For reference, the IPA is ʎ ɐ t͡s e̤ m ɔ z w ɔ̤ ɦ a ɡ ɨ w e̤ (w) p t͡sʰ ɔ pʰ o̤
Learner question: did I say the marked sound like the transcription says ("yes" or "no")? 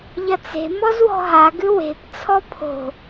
no